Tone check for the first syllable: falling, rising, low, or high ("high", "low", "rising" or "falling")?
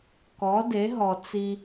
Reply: rising